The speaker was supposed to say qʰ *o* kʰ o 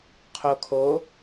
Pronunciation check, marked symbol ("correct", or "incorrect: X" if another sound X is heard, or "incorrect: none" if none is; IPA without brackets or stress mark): correct